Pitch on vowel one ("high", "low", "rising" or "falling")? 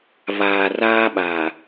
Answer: low